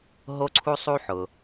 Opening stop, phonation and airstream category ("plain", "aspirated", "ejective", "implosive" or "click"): click